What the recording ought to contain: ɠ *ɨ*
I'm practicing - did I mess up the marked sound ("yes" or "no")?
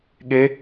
yes